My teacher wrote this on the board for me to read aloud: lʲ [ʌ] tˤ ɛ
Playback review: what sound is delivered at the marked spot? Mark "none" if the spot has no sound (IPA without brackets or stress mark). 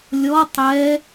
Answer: ɔ